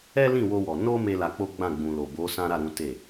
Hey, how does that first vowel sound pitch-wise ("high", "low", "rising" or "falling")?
high